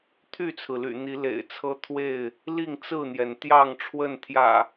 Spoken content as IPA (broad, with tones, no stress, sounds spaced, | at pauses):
t̪ʰ y˥˨ t͡sʰ ɹ̩˩ l y̰˨˩ n̪ i˨˦ l ḛ˨˩ ɪ̯ t͡sʰ ɤ˦ t̪ʰ w e˥˨ ɪ̯ | l i˥˨ ŋ t͡s ɹ̩˥˨ n̪ j ɛ˩ n t̪ j ɑ˥˨ ŋ ʈ͡ʂʰ w ə˥˨ n t̪ʰ j ä̰˨˩